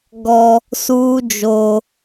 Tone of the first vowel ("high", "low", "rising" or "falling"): high